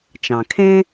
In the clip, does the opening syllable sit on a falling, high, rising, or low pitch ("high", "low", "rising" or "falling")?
low